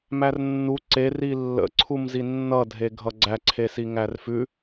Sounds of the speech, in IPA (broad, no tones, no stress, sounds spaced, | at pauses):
m æ r nː u ǀ e r i lː ə̰ ǀʰ u m z i nː ʌ dʱ e ɡʱ ʌ ɡ͡ǀ æ ǀʰ e s i ŋ æ r f ʉ